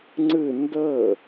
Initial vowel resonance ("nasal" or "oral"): oral